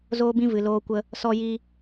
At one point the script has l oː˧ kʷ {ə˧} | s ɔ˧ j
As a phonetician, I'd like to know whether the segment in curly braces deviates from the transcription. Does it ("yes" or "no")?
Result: no